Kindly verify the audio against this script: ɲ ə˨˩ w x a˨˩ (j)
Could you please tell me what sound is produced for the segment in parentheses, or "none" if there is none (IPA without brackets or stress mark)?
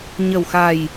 j